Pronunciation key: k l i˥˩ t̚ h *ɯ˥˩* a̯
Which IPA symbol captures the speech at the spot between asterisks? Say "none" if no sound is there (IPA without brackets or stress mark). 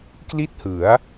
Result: ɯ˩˦